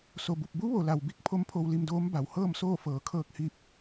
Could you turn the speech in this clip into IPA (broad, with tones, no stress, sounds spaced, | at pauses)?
s o˩ b u˧˩ p̚ b u˧˥ ʋ o˩ l a˩ w b i˧ k̚ pʰ o˧˥ m pʰ o˧ w l i˧ m d oː˧˥ m b a˩ w h ɤː˥˨ m s oː˥˨ f ɤː˩˧ kʰ ɤː˧ k̚ h iː˧ p̚